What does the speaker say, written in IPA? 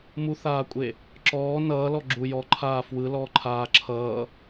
m u θ aː kʷʼ e | ǁ ɔː n ʌː l ɔ ɡ͡ǁ u j ɔ ǃʰ aː f w ɯ l ɔː ǃʰ aː ǁʰ ʌː

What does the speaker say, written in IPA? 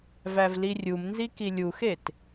v æ v l i rʲ u m n z i k i lʲ u x e t

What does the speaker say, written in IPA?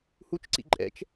h u t͡ʃ ǀ ḭ ǃʼ ɛ̰ t͡ʃ

